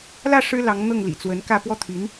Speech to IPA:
lä˥˩ ʂɻ̩˥lɑ˧˥ŋ n̪ɤ˥˩ŋlḭ˨˩t͡swə˧˥nkä˥˧ pwɔ˥˩ t̪ʰy˧˥n

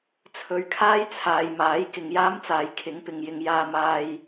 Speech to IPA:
t͡sʰɵ˨ɥkʰaː˥j t͡sʰaː˨jmaː˨˥j kɪ˨ŋjaː˥mt͡saː˨j kʰɪ˨˥ŋpɪ˨ŋjɪ˧ŋ jaː˧maː˧j

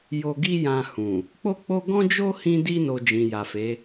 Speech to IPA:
jo˧ɡi˦jã˧ hũ˨ | k͡po˦k͡po˦ ɡɔ̃˦d͡ʒo˦ hĩ˧di˧no˨ d͡ʒĩ˨ja˨fe˨˦

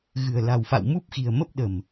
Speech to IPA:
ɣɨ̤˨˩ə̯la̤˨˩wfa̰˧˨w mu˦˥p̚xi̤˨˩ə̯mə˦˥p̚ ɗə̤˨˩m

